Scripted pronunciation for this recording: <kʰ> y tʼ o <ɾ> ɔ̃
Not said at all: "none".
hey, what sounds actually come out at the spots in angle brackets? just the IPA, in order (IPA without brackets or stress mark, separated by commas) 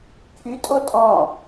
kʰ, tʼ